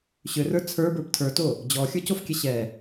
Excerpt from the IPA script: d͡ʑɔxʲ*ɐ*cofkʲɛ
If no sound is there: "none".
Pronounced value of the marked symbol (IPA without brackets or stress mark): ə˞